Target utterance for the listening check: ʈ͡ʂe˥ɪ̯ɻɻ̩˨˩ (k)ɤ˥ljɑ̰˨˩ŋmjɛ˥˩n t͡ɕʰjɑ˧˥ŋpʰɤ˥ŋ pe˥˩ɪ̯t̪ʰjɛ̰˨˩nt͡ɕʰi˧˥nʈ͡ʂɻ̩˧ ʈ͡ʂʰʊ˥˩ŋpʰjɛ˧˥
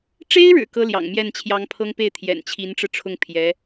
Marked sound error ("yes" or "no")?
no